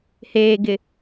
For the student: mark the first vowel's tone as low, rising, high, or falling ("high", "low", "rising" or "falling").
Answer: low